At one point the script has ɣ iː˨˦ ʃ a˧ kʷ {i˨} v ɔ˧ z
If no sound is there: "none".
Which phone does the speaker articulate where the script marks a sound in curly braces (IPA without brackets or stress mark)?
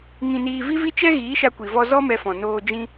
i˨